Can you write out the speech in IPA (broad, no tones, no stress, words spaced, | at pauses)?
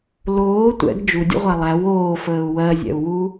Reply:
loː tʷɛ̰ɡ d͡ʒudʲə̰ʁʷæ lˠæw oːfəːu̯ wɜzʲɛ̰u̯wu